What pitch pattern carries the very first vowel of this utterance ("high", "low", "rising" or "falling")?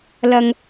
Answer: low